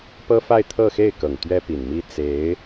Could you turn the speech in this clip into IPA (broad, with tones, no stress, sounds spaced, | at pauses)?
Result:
p ɤ˥ f a˥˧ ɪ̯ t̪ʰ ɤ˥˧ x e˥˩ ɪ̯ k ɤ˨˩ ŋ t̪ ɥ ɛ˥ p i˨˩ n m i˥ t͡s e˧˥ ɪ̯